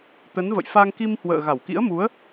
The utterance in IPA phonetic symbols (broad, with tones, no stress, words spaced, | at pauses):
t̪ə˨˦nvə̰˧˨jfa˧ŋ ki˧mhwə̰ː˧˨ ɣa˧˩wkḭ˧˥ə̯mu˨˦ə̯